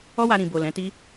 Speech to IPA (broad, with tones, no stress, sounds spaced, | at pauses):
ɔ˦ w a˧ ɾ ĩ˨ b o˨ l ɛ̃˨˦ t i˦